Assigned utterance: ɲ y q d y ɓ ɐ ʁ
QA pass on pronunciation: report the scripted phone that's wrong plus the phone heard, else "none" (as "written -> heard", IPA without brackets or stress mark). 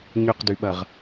none